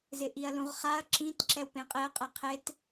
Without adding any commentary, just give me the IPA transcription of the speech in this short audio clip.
z ɪ ʔ i ɐ̯ l ũ ʁ χ a ɐ̯ ǁ ĩ t ǁ ɛ w p ẽ qʼ e ɐ̯ qʼ ɛ qʰ e t

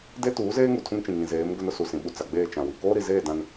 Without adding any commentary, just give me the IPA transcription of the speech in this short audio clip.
d e˦ t uː˨˦ z eː˦ ŋ u˨ tʰ ũ˦ ŋ t͡ʃ ĩ˨ ŋ ĩ˨ z eː˨˦ m ɡ ʊ˦ n ʊ˦ s u˨ s ĩ˨ ɓ u˨ t͡s a˨ ɡ͡b eː˦˨ t͡ʃ ã˨ w i˨ k oː˦ ɾ i˨ z eː˦˨ d ã˦ n

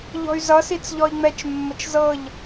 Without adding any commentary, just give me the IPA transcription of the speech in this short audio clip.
ʎ ɔ̤ y̯ z ʌ s i t͡s ʎ ɔ i̯ ŋ͡m ɛ t͡ʃ mː ə t͡ʃ z ɤ ʎ

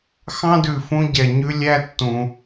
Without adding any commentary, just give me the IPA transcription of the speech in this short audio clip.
x ɑ̃˥ d ʉ˨ f ũ˦ ɟ ɛ˨ ɲ ʉ˥ lʲ æ˥ tː ũ˨

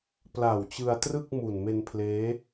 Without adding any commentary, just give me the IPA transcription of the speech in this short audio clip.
p l a˨˩ w t͡ɕ ɯ˧ a̯ t r ɯ˥˩ k̚ m u˨˩ n m e˧ n pʰ l eː˦˥

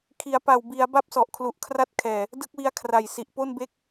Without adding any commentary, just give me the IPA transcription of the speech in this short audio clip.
kʰ i˩˦ a̯ p a˨˩ w b i˩˦ a̯ b a˥˩ p̚ s ɔ˨˩ ʔ kʰ l u˨˩ ʔ kʰ r a˥˩ t̚ kʰ ɛː˨˩ | d ɯ˥˩ k̚ w i˦˥ a̯ kʰ r a˨˩ j s i˨˩ ʔ p o˥˩ n b e˦˥ k̚

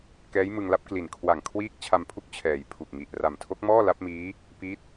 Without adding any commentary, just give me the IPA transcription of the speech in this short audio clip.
k ɛː˦˥ j m ɯ˧ ŋ l a˦˥ p̚ k l i˨˩ n kʰ w a˨˩ ŋ kʰ w iː˦˥ k̚ t͡ɕʰ a˧ m pʰ u˦˥ k̚ t͡ɕʰ ɛː˩˦ j pʰ u˨˩ k̚ ŋ i˨˩ ʔ r a˨˩ m tʰ o˦˥ k̚ m ɔː˥˩ l a˦˥ p̚ m iː˦˥ | p i˦˥ t̚

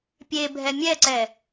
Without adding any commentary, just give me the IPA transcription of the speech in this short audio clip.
pʲ e bʱ ɛ mʲ ɛ ǀ ɛ

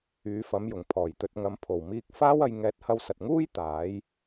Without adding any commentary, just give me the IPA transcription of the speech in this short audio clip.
yː˨˥ f ɐ˨˥ m j ʊ˨˩ ŋ pʰ ɔː˨˩ j t̪ ɵ˧ t̚ ŋ ɐ˧ m pʰ o˨˩ w m iː˧ k̚ f aː˥ w ɐ˧ j ŋ ɛː˧ t̚ h ɐ˧ w s ɐ˨ t̚ ŋ uː˥ j t̪ aː˨˥ j

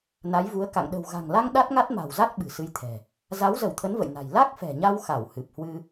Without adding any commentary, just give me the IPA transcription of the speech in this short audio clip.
n a˨˦ j v u˨˦ ə̯ k a̰˧˨ ŋ ɗ ə̤˨˩ w ɣ a̤˨˩ ŋ l a˧ ŋ ɗ a˦˥ t̚ ŋ a˦˥ t̚ m a̤˨˩ w z a˦˥ t̚ ɓ ɨ̤˨˩ s ɨ˧ j t̪ʰ ɛ̤˨˩ | z a˨˦ w z ə˧˩ w t̪ʰ ə˨˦ n v ə̰˧˨ j n a̤˨˩ j l a˦˥ k̚ f ɛ̤˨˩ ɲ a˧ w x a˧˩ w h ɨ˨˩ p̚ h w ɨ˧

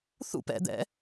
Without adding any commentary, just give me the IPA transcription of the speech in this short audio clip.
θ ṵ p ɛ̰ d̪ ɛ̰

